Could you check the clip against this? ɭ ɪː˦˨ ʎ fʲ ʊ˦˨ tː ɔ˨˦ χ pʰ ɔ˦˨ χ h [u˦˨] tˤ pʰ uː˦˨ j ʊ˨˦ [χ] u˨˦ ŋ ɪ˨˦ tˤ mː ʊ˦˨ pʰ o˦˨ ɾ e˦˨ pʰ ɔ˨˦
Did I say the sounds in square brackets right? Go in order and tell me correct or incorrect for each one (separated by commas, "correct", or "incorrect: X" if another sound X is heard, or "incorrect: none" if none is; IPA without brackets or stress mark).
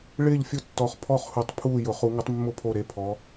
incorrect: u˨˩˦, correct